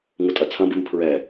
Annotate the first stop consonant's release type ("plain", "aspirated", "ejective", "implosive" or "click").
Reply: ejective